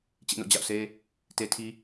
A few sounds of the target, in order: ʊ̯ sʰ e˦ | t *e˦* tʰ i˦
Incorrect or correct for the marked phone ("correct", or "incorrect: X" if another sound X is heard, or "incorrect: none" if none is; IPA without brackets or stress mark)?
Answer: correct